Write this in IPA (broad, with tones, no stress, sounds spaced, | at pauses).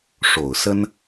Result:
ʂ o˨˩ ʊ̯ s ə˥ n